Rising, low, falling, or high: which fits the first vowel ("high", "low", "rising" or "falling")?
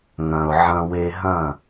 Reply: low